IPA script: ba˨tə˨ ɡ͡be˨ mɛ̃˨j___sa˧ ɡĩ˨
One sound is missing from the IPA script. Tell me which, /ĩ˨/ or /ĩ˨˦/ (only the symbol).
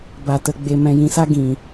ĩ˨